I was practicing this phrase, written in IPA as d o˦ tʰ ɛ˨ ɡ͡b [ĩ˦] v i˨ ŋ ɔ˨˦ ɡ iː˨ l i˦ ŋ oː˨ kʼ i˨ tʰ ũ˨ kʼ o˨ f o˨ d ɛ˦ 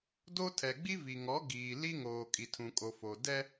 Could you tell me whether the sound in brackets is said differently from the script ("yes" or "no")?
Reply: yes